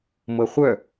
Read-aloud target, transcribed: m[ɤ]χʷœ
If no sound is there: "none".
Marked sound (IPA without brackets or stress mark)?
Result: ɤ